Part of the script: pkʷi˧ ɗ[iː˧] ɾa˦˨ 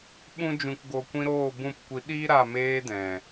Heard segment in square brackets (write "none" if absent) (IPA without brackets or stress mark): iː˦